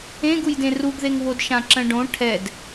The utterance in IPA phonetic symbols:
ẽ ɡ u j d ẽ r u ɡ ð e ŋ β o d ʃ ã ǁ ə̃ ɖ õ ʈʰ ɛ d

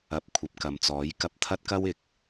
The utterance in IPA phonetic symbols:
ɐ˨˥ p̚ kʷʰ ɐ˨ p̚ k ɐ˨ m t͡s ɔː˨˥ j k ɐ˧ p̚ t̪ʰ ɐ˥ t̚ k ɐ˥ w ɪ˨ k̚

